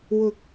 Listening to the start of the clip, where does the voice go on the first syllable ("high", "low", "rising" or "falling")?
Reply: rising